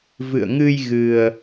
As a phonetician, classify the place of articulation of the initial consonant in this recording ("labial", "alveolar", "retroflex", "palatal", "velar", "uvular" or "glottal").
labial